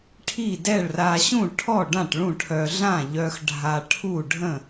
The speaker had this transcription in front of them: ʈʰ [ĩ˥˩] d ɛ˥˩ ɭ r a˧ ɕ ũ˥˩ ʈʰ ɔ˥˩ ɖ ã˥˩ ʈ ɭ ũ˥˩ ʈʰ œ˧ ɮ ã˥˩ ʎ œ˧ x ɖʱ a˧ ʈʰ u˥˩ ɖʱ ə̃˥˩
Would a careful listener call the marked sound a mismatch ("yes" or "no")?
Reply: yes